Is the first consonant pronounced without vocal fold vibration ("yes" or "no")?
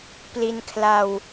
yes